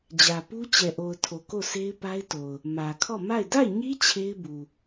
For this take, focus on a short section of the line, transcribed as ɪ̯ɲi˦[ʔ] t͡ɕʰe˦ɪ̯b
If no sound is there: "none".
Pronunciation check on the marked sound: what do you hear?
none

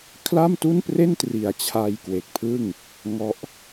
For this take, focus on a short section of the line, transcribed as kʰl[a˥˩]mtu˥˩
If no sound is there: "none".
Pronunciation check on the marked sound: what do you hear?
a˥˩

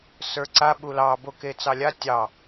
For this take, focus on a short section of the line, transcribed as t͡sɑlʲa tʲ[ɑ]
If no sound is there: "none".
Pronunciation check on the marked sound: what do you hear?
ɑ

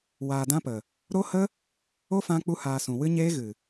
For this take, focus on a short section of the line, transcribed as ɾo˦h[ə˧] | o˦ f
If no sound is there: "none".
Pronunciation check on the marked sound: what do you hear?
ə˦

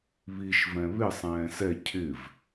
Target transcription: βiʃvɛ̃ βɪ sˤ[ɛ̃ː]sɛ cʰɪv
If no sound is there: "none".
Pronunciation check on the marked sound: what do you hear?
ɛ̃ː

